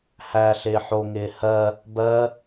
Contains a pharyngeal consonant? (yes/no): yes